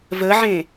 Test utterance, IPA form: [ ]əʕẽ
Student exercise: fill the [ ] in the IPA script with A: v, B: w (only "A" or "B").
A